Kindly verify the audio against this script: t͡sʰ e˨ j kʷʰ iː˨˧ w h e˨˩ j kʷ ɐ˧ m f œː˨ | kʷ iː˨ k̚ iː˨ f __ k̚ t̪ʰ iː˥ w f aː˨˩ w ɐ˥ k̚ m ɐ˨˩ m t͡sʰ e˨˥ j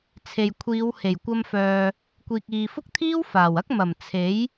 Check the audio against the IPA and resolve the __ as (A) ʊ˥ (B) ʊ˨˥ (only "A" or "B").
A